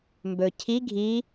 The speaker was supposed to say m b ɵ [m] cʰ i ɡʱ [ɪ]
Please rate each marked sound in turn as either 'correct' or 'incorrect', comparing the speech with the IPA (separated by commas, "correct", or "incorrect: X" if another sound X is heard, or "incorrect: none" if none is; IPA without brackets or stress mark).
incorrect: none, incorrect: i